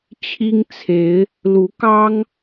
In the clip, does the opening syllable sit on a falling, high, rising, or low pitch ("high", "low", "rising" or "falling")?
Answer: high